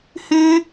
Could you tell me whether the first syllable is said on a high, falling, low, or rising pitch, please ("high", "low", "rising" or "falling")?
high